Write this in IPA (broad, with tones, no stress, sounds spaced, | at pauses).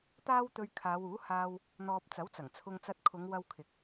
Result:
t̪ aː˥ w t̪ ɵ˧ ɥ kʰ aː˨˧ w uː˨˥ h aː˧ w | n̪ ɔː˨ p̚ t͡s ɐ˨˥ w t͡s ɐ˨˩ ŋ t͡sʰ ʊ˧ ŋ t͡s ɐ˧ t̚ kʰ ʊ˨˧ ŋ w ɐ˧ w kʰ ɪ˨ k̚